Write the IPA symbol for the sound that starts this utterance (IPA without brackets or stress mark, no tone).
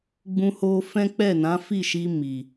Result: ɡ͡b